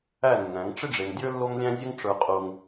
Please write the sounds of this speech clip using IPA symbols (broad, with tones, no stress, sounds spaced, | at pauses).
æ˦˨ nː æ̃˨˦ ŋ ʈ͡ʂ ɪ˦ ɖ͡ʐ e˨ ŋ dʲ ə˞˦ lː o˦ ŋ lʲ æ̃˦ zʲ ə˦ ŋ ʈ͡ʂ ə˞˦ qʼ uː˦ ŋ